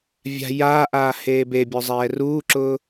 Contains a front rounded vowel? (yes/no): no